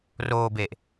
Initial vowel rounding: rounded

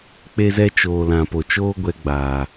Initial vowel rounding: unrounded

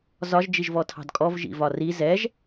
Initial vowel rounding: rounded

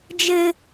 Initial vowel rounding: unrounded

